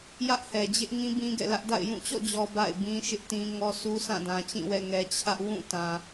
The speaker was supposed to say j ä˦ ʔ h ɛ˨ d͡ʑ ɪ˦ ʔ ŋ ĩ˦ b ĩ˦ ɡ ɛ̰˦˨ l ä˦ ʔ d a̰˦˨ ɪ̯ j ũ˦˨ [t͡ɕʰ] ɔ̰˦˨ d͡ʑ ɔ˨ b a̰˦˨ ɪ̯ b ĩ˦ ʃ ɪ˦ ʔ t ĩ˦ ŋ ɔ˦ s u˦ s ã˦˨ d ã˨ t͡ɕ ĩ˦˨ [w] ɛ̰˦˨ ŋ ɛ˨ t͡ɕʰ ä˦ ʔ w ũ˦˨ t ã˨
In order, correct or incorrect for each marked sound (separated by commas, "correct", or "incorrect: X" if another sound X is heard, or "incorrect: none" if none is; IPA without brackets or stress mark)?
incorrect: t͡ɕ, correct